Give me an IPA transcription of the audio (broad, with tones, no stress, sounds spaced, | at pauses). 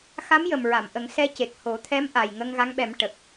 x a˧˥ m j ə˨˩ m ɹ a˨˩˨ m ʔ ə˨˩˦ ŋ s ɛ˧ c e˨˩ k̚ h o˨˩˦ t̪ʰ ɛ˧˥ m ʔ a˨˩ j ŋ ə˧ ŋ ɣ a˧˥ ŋ ɓ ɛ˨˩˦ m ʈ ə˨˩ k̚